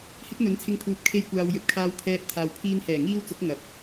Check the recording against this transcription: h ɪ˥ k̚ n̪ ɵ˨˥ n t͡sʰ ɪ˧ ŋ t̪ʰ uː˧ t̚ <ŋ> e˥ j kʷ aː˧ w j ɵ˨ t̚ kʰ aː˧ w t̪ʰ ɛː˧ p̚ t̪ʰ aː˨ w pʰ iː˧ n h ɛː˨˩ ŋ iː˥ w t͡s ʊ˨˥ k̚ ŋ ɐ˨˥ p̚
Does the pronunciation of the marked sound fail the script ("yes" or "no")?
yes